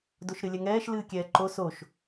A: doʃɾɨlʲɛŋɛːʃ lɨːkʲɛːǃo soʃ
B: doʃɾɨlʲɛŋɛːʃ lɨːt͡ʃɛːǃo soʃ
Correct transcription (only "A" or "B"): A